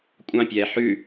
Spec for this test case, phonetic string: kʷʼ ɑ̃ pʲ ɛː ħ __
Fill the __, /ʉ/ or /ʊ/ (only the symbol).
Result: ʉ